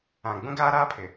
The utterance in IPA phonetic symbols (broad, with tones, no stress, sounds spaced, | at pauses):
ã˨ ɡ͡b ũ˦ ɡ aː˦ ɾ aː˦ pʰ ɪ˨